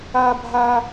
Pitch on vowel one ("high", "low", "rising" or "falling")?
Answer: high